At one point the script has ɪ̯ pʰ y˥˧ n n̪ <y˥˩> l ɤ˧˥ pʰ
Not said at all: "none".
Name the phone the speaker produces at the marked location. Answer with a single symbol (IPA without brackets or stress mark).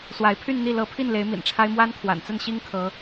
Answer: i˥˩